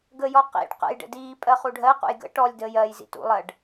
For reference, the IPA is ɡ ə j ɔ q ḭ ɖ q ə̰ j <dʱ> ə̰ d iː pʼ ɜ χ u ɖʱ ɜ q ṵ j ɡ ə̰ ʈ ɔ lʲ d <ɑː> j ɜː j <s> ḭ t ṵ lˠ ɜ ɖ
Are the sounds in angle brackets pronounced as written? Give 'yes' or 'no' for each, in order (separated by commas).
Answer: no, no, no